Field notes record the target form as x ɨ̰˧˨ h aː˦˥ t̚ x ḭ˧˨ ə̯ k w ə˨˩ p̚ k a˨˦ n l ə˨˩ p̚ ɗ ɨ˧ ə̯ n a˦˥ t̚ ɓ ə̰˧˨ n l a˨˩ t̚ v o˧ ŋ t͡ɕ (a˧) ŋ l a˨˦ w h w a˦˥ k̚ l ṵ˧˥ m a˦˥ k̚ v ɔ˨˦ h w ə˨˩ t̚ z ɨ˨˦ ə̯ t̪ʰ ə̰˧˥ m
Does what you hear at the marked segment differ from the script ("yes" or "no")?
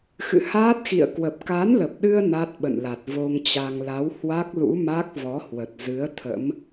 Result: no